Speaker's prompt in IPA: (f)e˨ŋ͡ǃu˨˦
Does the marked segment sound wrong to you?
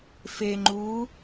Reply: no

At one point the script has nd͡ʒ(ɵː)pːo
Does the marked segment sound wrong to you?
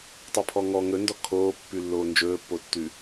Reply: no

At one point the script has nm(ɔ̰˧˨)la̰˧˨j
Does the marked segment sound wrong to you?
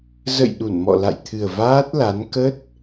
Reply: no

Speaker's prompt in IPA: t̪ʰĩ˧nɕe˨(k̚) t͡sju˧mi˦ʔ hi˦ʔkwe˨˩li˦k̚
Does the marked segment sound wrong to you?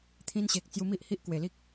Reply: no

